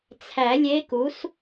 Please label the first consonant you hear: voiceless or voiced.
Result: voiceless